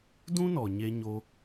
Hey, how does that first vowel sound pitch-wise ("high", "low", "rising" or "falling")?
high